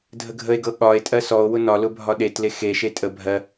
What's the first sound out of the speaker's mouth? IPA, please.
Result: dʱ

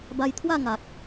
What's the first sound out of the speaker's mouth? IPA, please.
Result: b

